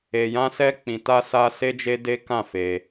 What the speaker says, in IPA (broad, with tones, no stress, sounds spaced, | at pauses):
e˨ j ã˧ s ɛ˧ k͡p ĩ˨ t a˧ s a˧ s e˦ d͡ʒ e˦ d e˦ k ã˦˨ f e˧